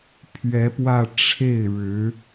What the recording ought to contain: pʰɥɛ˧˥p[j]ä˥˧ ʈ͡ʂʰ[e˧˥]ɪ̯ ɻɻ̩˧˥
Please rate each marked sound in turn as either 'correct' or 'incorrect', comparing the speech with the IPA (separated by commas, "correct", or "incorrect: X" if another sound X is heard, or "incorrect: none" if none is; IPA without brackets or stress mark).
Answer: incorrect: w, incorrect: e˥˩